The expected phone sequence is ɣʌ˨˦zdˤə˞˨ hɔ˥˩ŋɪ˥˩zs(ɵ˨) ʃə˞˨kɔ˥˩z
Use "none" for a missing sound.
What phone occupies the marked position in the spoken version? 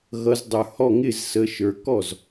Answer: ə˨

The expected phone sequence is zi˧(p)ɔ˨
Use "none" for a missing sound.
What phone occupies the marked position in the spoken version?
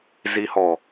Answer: h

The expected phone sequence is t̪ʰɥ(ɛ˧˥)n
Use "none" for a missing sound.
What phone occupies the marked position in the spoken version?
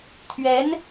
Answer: ɛ˧˥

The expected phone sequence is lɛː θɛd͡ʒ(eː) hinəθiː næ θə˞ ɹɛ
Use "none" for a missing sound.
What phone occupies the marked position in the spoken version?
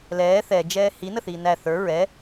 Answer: ɛː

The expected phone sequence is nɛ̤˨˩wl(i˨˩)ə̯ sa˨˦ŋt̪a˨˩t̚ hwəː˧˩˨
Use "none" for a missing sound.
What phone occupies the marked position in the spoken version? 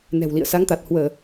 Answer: ḭ˧˨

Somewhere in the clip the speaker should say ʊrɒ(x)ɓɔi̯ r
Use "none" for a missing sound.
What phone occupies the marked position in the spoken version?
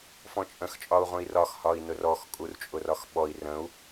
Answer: x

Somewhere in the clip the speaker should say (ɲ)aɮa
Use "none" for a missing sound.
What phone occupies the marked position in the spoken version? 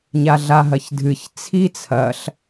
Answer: ɲ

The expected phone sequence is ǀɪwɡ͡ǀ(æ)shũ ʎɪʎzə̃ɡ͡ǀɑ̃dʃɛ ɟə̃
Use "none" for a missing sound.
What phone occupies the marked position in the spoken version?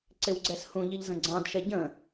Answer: ɛ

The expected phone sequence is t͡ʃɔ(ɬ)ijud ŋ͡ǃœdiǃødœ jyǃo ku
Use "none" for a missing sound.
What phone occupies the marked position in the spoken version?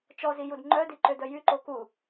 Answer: z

